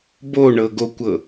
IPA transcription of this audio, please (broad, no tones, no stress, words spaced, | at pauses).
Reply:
boɳɤɡokʷɤ